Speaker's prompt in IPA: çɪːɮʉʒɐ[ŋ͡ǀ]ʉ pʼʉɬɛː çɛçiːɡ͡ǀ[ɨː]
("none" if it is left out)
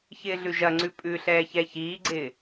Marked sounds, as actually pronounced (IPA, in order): ŋ͡ǀ, ɪː

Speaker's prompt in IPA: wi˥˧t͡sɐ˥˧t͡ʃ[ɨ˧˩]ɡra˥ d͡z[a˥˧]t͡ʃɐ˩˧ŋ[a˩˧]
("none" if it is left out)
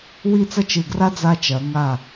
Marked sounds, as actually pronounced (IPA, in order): ɨ˧˩, a˧, a˧˩

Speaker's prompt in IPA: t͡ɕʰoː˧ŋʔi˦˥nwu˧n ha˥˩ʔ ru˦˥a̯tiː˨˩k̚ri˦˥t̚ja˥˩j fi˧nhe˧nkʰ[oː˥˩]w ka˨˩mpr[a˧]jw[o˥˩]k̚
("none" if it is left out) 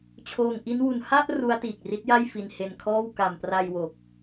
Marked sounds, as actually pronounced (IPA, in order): ɔː˥˩, a˧, o˨˩

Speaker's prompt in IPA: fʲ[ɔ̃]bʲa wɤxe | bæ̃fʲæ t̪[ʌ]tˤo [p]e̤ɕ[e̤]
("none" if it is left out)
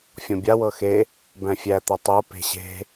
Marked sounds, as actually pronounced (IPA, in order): ɔ̃, ʌ, p, e̤

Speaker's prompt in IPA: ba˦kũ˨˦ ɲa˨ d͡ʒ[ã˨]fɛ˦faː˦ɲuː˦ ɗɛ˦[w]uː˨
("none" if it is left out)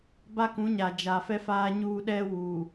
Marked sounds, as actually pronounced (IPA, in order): a˨, w

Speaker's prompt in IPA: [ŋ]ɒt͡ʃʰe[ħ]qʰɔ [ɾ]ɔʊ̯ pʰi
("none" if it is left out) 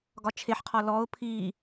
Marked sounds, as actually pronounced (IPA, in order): ɡ, ħ, l

